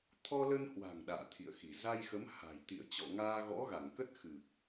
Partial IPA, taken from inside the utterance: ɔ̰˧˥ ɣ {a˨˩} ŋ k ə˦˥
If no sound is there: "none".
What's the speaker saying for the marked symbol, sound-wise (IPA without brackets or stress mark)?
a˧˩